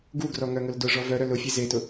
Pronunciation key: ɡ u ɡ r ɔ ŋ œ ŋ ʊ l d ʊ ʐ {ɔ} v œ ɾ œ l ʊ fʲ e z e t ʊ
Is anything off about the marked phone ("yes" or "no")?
no